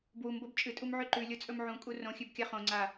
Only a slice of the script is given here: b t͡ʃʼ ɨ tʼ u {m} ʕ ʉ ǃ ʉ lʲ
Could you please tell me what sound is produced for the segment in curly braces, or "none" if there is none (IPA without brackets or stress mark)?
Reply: m